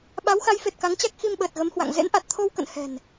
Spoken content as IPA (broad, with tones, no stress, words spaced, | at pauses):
ɓa˨˦wxa˨˦jfe˨˩t̚ ka˨˦ŋt͡ɕa˦˥k̚ xi˧mɓəː˨˩t̚ɣə˨˦mhwa̰˧˨ŋ zḛ˧˥nʔa˨˩t̚t̪ʰo˧wkə̰˧˨n hɛ̤˨˩n